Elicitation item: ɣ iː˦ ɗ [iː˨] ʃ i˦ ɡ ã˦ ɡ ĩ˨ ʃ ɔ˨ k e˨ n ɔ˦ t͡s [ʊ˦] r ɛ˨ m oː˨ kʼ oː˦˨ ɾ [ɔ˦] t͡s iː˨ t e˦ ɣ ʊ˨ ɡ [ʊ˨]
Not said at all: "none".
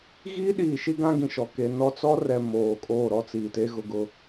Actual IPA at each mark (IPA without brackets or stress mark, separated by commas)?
iː˨, ɔ˦, ɔ˦, ʊ˦˨